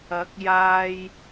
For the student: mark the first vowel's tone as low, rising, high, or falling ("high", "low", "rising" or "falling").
rising